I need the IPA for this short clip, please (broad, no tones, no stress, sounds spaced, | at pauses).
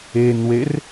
e n w e r